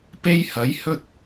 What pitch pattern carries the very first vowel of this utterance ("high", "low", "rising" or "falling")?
high